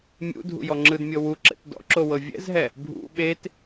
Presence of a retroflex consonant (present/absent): absent